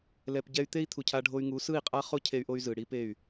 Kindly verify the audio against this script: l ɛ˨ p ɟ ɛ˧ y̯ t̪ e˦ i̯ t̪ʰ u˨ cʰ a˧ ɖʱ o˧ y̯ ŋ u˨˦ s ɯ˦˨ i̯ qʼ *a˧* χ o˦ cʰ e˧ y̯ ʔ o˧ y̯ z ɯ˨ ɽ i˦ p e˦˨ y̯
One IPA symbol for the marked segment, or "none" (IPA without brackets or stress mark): a˦